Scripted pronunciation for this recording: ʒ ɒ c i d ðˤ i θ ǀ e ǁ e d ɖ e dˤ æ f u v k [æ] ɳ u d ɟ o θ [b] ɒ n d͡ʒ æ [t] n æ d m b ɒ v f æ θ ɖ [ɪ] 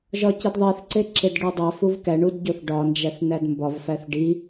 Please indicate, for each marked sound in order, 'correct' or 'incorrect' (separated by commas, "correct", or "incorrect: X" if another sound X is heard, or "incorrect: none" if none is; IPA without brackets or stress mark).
correct, incorrect: ɖ, incorrect: θ, incorrect: i